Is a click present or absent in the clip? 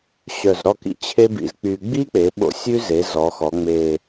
absent